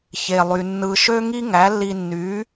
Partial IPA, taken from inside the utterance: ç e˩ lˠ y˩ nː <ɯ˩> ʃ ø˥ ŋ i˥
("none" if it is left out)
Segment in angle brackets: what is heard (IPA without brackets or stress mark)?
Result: ɯ˩